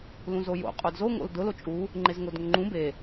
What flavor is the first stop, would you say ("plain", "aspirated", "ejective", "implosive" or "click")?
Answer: ejective